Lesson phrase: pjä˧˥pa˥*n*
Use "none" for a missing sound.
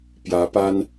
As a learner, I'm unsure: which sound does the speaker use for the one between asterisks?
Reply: n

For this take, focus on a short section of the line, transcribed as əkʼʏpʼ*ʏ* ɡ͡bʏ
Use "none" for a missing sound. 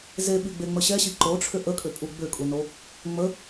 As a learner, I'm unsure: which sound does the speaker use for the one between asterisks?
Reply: u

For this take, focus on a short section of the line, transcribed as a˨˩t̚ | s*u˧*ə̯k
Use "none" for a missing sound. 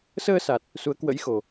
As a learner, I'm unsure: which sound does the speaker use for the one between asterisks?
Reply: u˨˦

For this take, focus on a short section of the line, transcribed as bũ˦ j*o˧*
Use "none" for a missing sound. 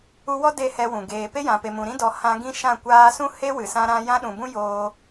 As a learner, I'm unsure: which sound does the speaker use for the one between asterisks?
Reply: oː˧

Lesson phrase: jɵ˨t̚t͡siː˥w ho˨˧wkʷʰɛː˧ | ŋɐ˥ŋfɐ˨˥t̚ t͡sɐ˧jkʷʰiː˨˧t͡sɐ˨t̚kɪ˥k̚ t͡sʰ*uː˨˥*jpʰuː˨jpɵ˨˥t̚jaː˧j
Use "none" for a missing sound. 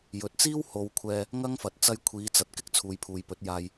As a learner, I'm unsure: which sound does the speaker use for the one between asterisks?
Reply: uː˨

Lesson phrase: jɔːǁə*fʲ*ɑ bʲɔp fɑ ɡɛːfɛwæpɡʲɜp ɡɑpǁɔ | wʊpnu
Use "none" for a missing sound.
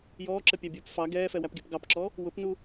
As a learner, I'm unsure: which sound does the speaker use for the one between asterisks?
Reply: pʲ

